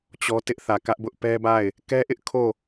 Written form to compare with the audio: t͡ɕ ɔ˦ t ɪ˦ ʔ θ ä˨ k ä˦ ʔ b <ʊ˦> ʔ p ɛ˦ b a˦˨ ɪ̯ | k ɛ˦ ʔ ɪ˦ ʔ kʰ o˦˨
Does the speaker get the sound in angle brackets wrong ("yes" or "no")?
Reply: no